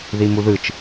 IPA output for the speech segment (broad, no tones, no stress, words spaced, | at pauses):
ðimuðɯt͡ʃ